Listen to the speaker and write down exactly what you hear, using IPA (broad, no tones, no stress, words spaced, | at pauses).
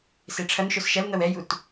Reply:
seʈ͡ʂʰɐnʃos ʃɐl n̪ɐwɛjut